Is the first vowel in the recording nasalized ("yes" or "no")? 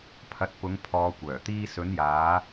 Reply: no